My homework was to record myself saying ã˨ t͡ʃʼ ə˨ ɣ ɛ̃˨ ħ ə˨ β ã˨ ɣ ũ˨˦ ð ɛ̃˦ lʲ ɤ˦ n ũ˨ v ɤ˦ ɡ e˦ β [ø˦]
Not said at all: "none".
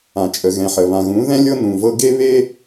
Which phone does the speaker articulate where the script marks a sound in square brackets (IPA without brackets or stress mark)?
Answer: e˦